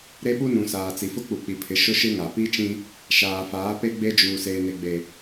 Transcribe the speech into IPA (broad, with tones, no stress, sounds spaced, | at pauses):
ɾ e˦ ɓ u˦ n ũ˨ s aː˨ t͡s i˨ f ʊ˦ k͡p u˨ k͡p i˨ pʰ ɪ˨˦ ʃ ʊ˦ ʃ ɪ˦ ŋ a˨ p i˦ t͡ʃ ĩ˦ | ʃ aː˨ f aː˨˦ p e˦ ɡ͡b e˦ d͡ʒ uː˨ s eː˨ n e˨ ɡ͡b e˨